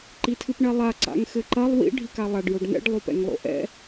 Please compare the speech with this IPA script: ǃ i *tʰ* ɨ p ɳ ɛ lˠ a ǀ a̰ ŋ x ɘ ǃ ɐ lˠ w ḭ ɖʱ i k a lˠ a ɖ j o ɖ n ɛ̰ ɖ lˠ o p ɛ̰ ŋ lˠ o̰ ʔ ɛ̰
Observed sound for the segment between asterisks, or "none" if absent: tʰ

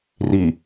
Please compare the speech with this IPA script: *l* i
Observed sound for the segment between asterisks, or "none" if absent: r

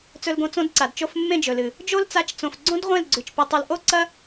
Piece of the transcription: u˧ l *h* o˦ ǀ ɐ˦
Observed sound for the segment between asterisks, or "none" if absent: ʔ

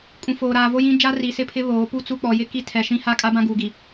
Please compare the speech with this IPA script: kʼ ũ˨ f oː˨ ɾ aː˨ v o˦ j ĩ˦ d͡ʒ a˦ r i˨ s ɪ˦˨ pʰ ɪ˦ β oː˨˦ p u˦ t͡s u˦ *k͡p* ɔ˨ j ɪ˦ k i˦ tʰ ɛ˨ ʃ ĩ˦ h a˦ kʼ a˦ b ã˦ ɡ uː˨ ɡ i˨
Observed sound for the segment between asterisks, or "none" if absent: k͡p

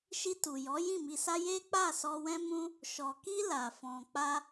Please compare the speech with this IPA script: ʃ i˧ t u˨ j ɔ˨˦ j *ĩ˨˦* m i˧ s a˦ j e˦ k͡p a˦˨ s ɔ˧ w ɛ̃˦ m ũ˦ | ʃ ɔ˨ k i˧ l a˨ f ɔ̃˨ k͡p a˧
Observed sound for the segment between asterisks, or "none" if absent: ĩ˦˨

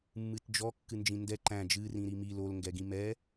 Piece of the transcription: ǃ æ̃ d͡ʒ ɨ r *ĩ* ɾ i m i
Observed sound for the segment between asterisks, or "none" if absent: ĩ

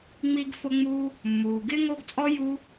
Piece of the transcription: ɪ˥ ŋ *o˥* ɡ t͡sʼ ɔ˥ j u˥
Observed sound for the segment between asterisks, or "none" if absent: o˥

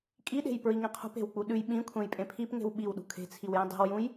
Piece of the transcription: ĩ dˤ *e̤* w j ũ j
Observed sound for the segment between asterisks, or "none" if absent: e̤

